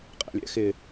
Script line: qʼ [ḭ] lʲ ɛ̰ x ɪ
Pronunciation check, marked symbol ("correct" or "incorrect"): incorrect